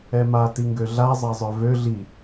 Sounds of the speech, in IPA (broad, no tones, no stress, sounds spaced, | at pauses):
ɛ m a t i ŋ ɡ ø ɮ a zˤ a zˤ œ v ø ɮ i